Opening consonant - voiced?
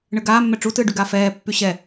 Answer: yes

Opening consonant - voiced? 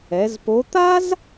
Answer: yes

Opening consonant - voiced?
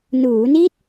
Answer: yes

